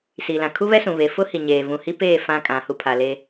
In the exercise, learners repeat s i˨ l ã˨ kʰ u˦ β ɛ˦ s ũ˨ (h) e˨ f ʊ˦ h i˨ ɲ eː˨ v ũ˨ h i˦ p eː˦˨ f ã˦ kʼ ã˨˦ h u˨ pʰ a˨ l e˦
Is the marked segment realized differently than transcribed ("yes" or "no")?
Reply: yes